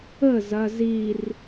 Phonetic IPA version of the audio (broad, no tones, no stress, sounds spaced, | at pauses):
ə z ɐ z i r